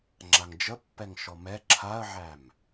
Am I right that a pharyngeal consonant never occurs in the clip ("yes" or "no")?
no